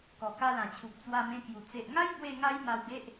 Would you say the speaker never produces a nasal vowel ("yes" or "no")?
no